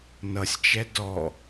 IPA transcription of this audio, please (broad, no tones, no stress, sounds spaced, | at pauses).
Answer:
n ʌ sʲ t͡ʃ ɛ d ɔ